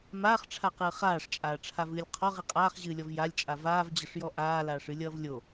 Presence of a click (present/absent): absent